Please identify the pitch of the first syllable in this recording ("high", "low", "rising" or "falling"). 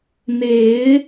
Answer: rising